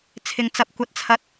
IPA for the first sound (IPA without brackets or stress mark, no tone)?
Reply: t͡sʰ